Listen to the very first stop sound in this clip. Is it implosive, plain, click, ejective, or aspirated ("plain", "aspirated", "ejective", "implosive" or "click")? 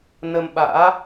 implosive